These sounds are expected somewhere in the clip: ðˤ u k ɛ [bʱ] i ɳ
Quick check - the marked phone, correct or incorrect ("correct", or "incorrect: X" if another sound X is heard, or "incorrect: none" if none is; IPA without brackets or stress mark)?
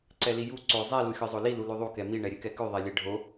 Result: incorrect: m